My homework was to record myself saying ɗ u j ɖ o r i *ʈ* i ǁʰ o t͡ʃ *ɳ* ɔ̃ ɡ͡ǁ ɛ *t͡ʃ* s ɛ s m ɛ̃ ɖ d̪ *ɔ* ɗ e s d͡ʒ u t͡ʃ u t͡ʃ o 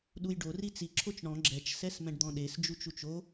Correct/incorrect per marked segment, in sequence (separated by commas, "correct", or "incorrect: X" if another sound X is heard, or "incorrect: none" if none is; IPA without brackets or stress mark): incorrect: t͡s, correct, correct, incorrect: ɔ̃